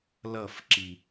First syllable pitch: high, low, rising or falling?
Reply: falling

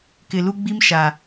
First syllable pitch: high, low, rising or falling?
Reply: low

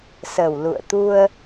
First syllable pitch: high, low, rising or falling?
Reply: low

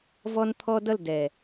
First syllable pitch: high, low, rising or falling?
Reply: high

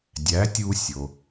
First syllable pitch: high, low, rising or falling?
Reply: rising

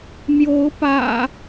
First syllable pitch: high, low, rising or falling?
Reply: rising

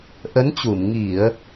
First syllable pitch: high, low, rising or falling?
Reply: rising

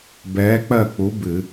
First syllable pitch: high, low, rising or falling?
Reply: rising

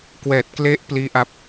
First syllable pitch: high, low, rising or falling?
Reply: low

